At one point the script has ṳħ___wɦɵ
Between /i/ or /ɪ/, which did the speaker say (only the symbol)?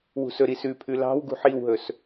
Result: i